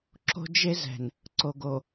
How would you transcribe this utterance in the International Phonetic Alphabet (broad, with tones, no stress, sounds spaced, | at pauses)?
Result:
ǁ o̤˦ d͡ʒ e˦ z ɛ̤˨ n | ǀ o˨ ɡ o˨